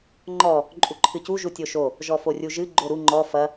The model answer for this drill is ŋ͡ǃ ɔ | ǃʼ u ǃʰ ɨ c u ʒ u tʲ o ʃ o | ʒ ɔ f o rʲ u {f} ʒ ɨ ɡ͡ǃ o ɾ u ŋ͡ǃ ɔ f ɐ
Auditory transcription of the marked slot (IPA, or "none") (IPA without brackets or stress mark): none